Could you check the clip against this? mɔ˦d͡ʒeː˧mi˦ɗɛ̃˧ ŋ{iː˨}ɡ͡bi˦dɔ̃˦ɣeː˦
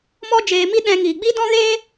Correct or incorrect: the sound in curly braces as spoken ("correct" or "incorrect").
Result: correct